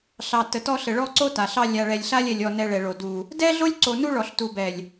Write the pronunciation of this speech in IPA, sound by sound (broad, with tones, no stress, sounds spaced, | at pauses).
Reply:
ɬ ɑ˨ t ə˨ t ɔ˦ ɬ ə˨ ɭ ɔ˦ ǀ o˦ t a˨ ɬ ɑ˦ lʲ a˨ ɭ ɛ˨ lʲ ɬ a˦ lʲ ɛ˨ lʲ ɔ˨ n ɛ˨ ɭ ɛ˨ ɭ o˨ d u˨ | d ɛ˦ ɮ o˦ lʲ ǀ o˨ n u˦ ɭ ɔ˨ ɬ t u˨ b ɛ˨ lʲ